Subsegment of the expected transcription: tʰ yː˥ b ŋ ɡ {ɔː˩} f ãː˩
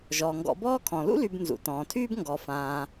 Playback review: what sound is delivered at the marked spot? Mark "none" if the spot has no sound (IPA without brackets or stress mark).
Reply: ɔ˩